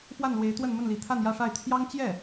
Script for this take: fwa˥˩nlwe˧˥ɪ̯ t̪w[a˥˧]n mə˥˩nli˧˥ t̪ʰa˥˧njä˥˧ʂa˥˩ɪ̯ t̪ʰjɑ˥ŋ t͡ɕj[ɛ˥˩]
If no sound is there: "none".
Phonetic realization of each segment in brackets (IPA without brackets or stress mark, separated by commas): ə˥˧, ɛ˥˩